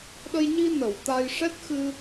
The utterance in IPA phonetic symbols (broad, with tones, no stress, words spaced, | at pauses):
ɗə˧jɲi˧ nə˨˩˨w t̪a˧j ʂɛ˦˥t̚xɨ˧